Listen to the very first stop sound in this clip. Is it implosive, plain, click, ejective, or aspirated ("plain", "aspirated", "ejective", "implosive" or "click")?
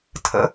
aspirated